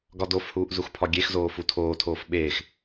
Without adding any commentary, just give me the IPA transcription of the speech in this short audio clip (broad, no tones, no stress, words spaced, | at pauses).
ɡɒdofhuːʔ zuxpʰɒɡʲexzoː futʰoːtʰoːf ɓeːx